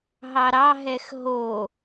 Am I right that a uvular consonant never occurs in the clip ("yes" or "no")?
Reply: yes